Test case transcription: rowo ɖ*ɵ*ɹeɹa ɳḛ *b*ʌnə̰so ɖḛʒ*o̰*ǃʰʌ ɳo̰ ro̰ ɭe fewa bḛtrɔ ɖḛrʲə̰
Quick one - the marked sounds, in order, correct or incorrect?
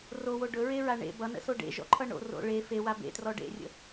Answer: correct, correct, incorrect: ɔ̰

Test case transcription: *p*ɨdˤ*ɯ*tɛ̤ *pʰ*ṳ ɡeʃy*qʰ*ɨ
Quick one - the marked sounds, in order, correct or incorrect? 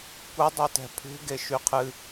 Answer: incorrect: kʷ, incorrect: u, correct, correct

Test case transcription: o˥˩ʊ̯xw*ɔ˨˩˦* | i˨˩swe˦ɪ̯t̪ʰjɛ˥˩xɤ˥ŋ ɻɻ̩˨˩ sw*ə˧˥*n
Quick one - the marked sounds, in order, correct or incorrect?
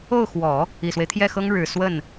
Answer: correct, incorrect: ə˥˩

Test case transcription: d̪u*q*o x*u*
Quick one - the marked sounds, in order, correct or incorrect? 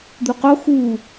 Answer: correct, correct

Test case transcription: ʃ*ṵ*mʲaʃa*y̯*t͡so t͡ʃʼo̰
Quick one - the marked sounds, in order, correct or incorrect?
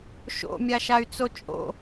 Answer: incorrect: o̰, correct

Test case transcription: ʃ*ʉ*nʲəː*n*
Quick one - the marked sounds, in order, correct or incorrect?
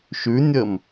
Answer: correct, incorrect: m

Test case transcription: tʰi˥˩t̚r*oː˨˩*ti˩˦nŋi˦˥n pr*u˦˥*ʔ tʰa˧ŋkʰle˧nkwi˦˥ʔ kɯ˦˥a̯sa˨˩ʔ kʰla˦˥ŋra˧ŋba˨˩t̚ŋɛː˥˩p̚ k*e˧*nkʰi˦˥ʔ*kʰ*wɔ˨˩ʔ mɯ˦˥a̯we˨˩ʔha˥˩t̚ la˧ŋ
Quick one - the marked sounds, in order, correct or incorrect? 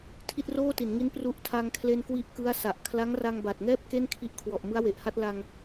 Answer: incorrect: oː˥˩, correct, incorrect: e˥˩, correct

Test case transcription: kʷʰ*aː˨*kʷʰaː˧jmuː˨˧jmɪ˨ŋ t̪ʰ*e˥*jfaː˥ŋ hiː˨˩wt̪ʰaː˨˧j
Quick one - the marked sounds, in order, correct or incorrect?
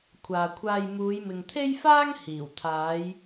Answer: correct, correct

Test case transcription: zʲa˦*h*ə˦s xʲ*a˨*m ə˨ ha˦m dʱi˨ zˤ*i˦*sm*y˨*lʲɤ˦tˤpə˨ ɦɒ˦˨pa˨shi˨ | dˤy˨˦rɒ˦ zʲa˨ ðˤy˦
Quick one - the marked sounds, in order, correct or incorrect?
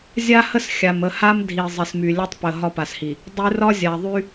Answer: correct, correct, incorrect: i˨, correct

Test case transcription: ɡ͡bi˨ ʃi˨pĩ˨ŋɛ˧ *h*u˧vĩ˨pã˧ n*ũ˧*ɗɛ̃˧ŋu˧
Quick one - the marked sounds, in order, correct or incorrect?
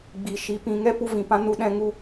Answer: incorrect: p, incorrect: u˧

